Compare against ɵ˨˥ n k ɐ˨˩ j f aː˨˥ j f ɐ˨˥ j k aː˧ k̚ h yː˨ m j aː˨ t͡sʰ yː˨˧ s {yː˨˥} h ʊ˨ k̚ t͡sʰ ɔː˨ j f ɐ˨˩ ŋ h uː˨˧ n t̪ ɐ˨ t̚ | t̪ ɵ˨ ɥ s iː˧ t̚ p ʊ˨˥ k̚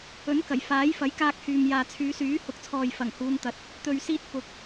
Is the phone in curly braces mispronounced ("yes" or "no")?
no